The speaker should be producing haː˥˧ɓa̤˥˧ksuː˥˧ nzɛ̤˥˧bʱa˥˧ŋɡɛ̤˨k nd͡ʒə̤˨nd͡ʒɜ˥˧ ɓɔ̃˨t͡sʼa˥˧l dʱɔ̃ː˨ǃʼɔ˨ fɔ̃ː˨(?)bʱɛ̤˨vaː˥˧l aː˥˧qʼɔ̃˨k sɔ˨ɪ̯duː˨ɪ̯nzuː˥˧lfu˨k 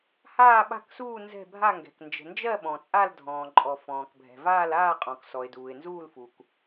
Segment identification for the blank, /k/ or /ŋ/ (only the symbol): k